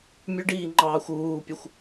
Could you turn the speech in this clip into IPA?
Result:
mʲ ʉ ɖ iː ŋ͡ǃ ɑː xʷ uː pʲ ə xʷ

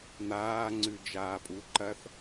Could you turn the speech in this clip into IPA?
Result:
n̪ aː ŋ͡ǀ ʉ d͡ʒ aː pʼ u ǃ ɐ θ

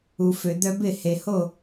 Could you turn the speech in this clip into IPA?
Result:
u˩ f ø˩ d̪ œ˧ b ɪ˥˩ h e˩ h o˥˩

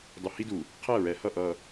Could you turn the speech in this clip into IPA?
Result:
dˤ u˨ h i˦ d u˨ | qʰ ɛ˦˨ ɹ ɛ˨ h ʌ˦˨ ʔ ʌ˨

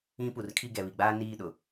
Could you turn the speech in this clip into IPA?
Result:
ĩ˦ p u˨ r kʰ i˦˨ ɡ ɛ˨ β i˨ ɡ͡b aː˦ n iː˦˨ ɗ ʊ˨

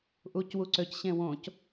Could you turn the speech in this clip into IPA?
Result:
ʔ u c w u ǀ ø c ɕ ẽ w õ c

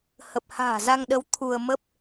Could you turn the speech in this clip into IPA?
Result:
h ə˨˩ p̚ h a̤ː˨˩ z a˧ ŋ ɗ ə˨˦ w t̪ʰ u˧ ə̯ m ə˦˥ p̚

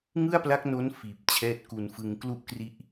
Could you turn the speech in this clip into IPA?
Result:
ŋ ɯ˥˩ a̯ p l a˦˥ k̚ n o˦˥ n f iː˨˩ p̚ t͡ɕʰ ɛː˦˥ t̚ k u˧ n f ɯ˧ ŋ k l u˥˩ ʔ k r i˦˥ ʔ

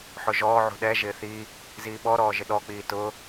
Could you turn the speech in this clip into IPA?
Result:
ħ ʊ ʒ ɔː ʕ ṳ ɗ ɛ ʒ ɪː θ i | z iː ɓ ɔ ɾ ɔː ʒ ɪ ɗ ɔ k͡p iː t ʊ

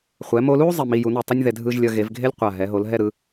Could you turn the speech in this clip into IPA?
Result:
χʷ ɛ˩˧ m o˧ l u˥ zˤ i˧˩ m i˧ j u˩˧ n u˧˩ tˤ ʌ˥ nʲ ð ɛ˧ dʱ ɯ˧ ʒ lʲ ʌ˧ ɣ e˩˧ v ɡʱ e˥ lʲ qʷ a˧˩ ɦ ɛ˩˧ ɦ o˩˧ l ɦ ɛ˥˧ ɾ ɯ˩˧

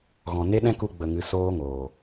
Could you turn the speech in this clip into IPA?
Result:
ɣ ɔ̃˨ n e˦ ɗ ɛ̃˦ k u˧ ɡ͡b ə˨ ŋ ɨ˧ s oː˦ ŋ oː˨

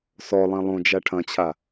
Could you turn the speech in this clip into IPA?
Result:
s ɔ lˠ ĩ lˠ õ d͡ʒ a ʈʰ ɐ̃ t͡ɕʰ a

